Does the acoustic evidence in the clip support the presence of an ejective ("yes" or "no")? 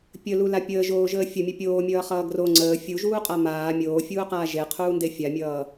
yes